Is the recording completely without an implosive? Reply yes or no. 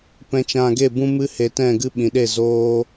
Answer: no